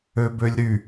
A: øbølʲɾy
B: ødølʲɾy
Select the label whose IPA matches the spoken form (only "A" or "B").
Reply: A